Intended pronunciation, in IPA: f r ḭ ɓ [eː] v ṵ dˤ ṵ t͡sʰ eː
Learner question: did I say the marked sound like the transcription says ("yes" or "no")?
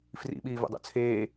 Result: no